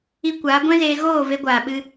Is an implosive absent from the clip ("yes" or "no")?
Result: no